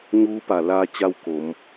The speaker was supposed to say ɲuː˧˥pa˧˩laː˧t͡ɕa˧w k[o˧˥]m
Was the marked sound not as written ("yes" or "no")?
yes